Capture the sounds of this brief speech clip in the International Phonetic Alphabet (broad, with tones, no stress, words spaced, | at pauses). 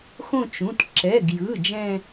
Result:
xõ˦˨ t͡ʃũ˩˧˩t ǁɛ˩˧˩ɡjɯ˩˧˩ d͡ʒɛ̃˦˨